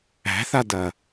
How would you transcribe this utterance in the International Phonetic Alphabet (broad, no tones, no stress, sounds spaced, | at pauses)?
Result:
æ̤ θ a d ɐ